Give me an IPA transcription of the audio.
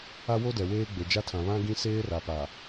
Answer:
a˦ w o˦ d ɛ˨ w eː˦ ɡ͡b e˨ d͡ʒ a˦ tʰ ã˨ β ã˦ ɡ ĩ˦ s eː˦ r a˨ p a˨

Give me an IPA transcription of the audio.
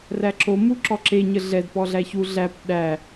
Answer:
r æ ǁ o m u ǁ ɔ ǁ e ɲ ə ɮ ɛ d p ɔ ɮ æ ç u ɮ æ p ɗ æ

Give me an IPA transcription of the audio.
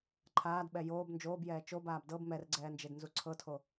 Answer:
ǃʰ aː d ɓ ɛ j oː b n d͡ʒ oː b j ɛː t͡ʃ o b aː b d ɤ b m ɛ r ɡ͡ǀ ɛː n d͡ʒ e d n z u ǀʰ ɤ tʰ o

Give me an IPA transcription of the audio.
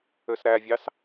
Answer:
ø s ɾ æ vʲ ɑ s

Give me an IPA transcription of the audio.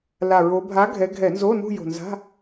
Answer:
l a˨˩ ɹ o˨˦ bʱ a˨˦ ɡʱ ɛ˨˦ ɡʱ ɛ˧˩˧ n z oː˧˥˧ n ṳ˥˧ j o̤˨˩ n z a̤˧˥˧

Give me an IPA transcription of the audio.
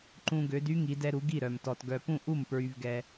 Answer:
ǃ ũ˧ ɡ ø˩˧ d y˧˥ ŋ i˩˧ d ɛ˧ ɾ u˩˧ ɡ i˥˩ ɾ œ˩ m t ɔ˩ t ɡ œ˩ p ũ˥˩ ʔ u˥˩ m p ɹ y˩ v ɡ ɛ˩

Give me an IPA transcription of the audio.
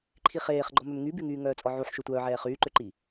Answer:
ǃʰ i χ eː χ ɡ͡ǃ ɔ m ø m ŋ y b y ŋ yː ŋ œː t͡sʼ ɔ ʕ u ħ ʃ ø tʷ œː ʕ ɛː χ yː ǃ ø ǃ i

